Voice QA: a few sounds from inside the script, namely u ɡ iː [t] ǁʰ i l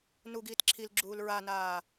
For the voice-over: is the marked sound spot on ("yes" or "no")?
yes